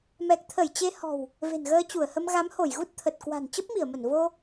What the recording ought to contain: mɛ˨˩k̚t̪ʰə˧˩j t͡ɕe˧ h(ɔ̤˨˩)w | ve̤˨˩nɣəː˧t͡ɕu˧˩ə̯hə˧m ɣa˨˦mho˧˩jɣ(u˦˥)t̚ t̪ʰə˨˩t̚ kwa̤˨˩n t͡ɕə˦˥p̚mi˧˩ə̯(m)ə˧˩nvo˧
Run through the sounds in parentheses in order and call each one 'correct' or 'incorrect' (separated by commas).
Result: correct, correct, correct